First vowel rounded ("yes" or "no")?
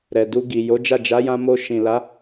no